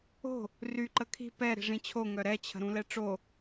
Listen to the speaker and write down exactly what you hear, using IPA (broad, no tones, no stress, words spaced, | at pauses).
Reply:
o̤ | ry ǃəkʰi̤ pɛ ɾi̤ʐĩt͡ɕʰo ŋœɾɛt͡ɕʰə̤ ɾũlɛʈ͡ʂo